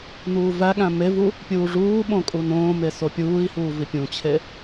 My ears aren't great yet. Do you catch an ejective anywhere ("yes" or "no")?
yes